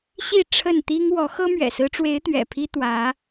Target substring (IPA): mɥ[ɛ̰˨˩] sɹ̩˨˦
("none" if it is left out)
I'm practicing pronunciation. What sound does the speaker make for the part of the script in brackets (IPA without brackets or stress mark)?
ɛ̰˨˩